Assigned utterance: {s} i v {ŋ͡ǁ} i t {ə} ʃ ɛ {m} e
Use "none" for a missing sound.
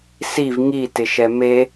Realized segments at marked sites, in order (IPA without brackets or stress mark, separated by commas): s, ŋ, ɪ, m